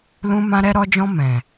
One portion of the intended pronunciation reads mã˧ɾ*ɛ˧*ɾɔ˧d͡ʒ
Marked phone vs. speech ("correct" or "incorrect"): correct